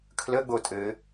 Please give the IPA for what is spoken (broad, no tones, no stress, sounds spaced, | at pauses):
kʰ l ə ɡ͡b o tʼ ɘ